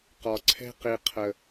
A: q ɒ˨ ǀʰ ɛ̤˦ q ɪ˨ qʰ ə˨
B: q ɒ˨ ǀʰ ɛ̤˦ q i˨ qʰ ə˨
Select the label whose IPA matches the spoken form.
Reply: B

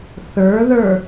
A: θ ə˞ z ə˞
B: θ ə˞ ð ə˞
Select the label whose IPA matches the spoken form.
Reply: B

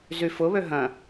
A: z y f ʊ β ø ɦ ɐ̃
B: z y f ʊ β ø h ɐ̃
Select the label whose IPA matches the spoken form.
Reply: A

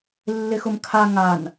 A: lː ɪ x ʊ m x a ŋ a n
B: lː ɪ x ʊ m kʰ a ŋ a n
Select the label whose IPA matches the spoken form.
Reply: B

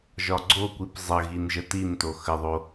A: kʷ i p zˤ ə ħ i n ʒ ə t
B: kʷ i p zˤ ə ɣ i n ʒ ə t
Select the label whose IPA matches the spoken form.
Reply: B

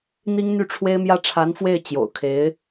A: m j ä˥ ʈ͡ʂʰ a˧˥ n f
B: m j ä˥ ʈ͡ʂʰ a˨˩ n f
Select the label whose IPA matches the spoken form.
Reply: A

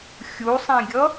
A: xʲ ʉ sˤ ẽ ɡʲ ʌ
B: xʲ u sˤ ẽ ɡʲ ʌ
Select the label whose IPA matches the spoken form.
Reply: B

